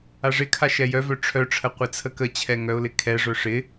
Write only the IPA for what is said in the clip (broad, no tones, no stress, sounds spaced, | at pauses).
a ʐ ɪ kʰ a ʃ ɛ j œ v œ ʈ͡ʂʰ œ ʈ͡ʂʰ ə qʷ ɪ t͡sʰ ə k ə t͡ɕʰ ɛ ŋ œ ʊ̯ l ɪ kʰ ɛ ʐ œ ʂ ɪ